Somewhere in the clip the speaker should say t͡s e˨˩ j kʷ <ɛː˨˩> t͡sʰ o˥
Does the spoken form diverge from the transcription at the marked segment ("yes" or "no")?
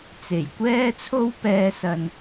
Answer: yes